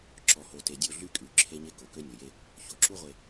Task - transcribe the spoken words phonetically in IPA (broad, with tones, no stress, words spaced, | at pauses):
ǁɔ˨ho˨te˨dʲo˦˨ ɮy˦kʼy˨ ǁʰe˦ɲe˦ ko˨kø˦nʲo˨je˦ | ço˨ǁu˦ʁʷe˨